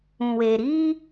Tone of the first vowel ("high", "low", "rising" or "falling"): low